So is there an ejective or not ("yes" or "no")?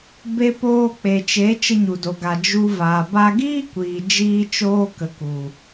no